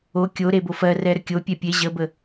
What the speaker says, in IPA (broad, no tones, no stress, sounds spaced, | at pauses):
o kʲ o ɾ e b o f ɜ r ɛ ɾ ə kʲ o pʲ ɛ pʲ e ʑ ə b ə